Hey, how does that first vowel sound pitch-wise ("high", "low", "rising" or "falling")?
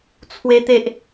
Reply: high